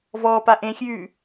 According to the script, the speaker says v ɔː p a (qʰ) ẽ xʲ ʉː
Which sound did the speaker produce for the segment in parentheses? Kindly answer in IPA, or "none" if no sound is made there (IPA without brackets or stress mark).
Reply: ʔ